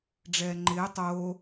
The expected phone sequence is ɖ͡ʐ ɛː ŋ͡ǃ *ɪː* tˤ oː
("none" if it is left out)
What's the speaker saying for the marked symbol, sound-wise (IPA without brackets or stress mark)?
ɪː